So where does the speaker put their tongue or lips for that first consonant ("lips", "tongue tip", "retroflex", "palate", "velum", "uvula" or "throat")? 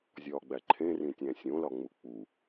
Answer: tongue tip